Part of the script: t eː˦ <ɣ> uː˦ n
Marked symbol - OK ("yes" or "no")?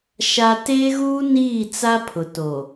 yes